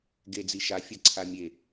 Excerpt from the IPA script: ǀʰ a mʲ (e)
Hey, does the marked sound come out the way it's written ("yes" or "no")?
yes